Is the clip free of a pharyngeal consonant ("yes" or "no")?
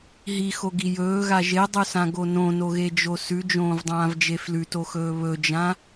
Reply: yes